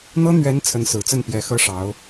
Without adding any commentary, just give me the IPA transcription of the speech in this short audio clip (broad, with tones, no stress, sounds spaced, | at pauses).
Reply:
n̪ ɤ˥ n̪ ɥ ɛ˧˥ n t͡sʰ ə˧˥ n s ɹ̩˨˩ t͡s ə˥˩ n p j ɛ˧˥ x ɤ˥ ʂ ɑ˧˥ ʊ̯